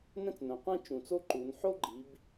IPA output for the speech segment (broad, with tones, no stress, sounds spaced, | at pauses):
n ɛ̃˥ t͡s n œ̃˩˧ qʷ ɛ̃˥ t͡ʃ ũ˨˩ t͡s o˥ ǃ u˩˧ n ħ o˥ ɡ͡ǃ i˩˧ b